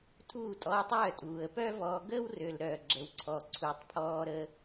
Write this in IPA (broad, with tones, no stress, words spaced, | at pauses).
tʰuː˦˨tʼɔː˧tˤœː˦˨ tʼuː˨ə̯pœ˦vɔː˧ ɡəː˦wrø˨lɾœː˨ɡ͡ǁə˨w ǀʰɔ˨ǀʰu˨tˤ pʰɔː˧ɾə˧